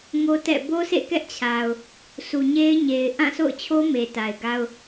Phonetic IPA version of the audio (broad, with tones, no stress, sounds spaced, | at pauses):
ŋ o˦ t ɛ̰˦˨ b o˦ s ḛ˦˨ k ɛ˦ ʔ t͡ɕʰ a˨ ʊ̯ | sʰ u˨ ɲ e˦ ɪ̯ ɲ e˨ ɪ̯ ʔ ã˦˨ s o̰˦˨ ʊ̯ t͡ɕʰ o˦ m e˨ t a˨ ɪ̯ ɡ a˦ ʊ̯